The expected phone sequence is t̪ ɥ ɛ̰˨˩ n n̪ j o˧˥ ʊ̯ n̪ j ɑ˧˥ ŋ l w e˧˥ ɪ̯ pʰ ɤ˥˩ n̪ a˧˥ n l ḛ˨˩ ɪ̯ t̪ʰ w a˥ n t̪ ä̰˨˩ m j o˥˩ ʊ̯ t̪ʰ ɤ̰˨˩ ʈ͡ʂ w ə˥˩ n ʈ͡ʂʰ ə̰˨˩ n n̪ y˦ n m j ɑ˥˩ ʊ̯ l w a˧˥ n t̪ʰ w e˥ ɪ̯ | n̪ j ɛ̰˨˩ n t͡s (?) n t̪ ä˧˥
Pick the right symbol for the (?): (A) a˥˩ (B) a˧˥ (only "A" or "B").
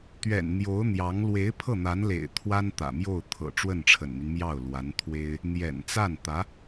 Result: A